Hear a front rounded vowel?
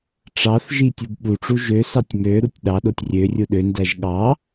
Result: yes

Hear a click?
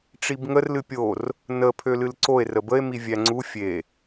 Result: yes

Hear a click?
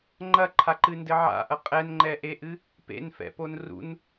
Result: yes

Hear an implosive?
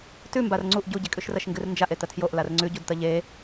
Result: no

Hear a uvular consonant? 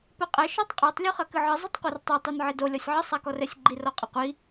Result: yes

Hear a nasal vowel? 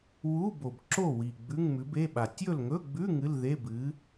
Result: no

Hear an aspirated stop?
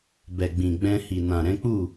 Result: no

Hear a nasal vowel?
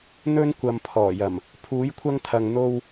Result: no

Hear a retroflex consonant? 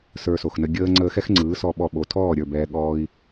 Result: no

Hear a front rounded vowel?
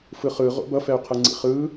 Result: yes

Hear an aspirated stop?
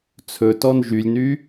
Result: yes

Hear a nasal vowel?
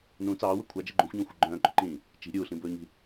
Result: yes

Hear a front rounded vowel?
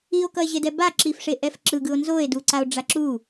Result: no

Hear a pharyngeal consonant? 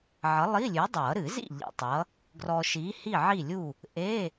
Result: yes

